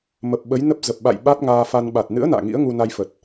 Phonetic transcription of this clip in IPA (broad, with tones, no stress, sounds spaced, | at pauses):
m ə˨˩ p̚ ɓ ə˨˦ j n ə˦˥ p̚ z ə˨˩ p̚ ɓ a̰˧˨ j ɓ a˦˥ t̚ ŋ aː˧ f a˧ n ɓ a˨˩ t̚ n ɨ̰˧˥ ə̯ n a̰ː˧˨ ŋ ḭ˧˥ ə̯ ŋ u˧ n a˧ j f ə˨˩ t̚